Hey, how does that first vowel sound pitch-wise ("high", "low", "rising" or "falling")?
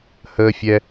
high